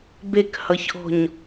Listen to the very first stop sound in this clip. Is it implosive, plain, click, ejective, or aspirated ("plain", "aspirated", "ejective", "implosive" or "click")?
plain